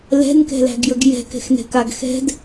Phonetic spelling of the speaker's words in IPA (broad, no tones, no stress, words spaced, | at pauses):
lɛ̤nkɛ̤læ̤ɡjəɡ jɛ̤kɛ̤xnɛ̤kaɡ xɛ̤d